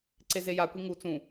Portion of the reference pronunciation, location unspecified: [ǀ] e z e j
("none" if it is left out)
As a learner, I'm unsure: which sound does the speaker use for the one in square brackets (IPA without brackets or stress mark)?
ǀ